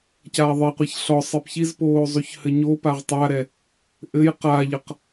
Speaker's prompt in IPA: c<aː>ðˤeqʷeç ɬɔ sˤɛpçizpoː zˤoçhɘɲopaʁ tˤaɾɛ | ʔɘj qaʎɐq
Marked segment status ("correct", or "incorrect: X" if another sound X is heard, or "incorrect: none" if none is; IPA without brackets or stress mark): correct